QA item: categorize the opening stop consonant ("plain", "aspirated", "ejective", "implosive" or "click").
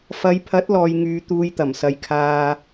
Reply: aspirated